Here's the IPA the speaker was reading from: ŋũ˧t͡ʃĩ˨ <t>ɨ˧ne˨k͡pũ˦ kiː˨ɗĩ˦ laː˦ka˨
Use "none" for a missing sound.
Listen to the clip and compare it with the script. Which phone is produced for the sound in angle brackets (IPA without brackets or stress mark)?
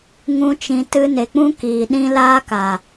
t